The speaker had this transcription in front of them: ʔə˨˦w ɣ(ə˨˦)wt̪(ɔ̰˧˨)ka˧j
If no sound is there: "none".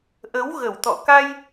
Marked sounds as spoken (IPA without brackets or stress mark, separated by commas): ə˨˩, ɔ̰˧˨